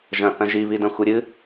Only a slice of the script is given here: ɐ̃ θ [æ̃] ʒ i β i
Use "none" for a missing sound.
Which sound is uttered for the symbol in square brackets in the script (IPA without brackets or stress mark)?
ɐ̃